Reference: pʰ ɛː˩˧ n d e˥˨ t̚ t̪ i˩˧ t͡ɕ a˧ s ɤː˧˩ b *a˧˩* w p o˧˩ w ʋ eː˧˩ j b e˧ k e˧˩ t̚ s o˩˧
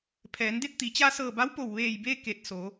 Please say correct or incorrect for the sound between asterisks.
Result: incorrect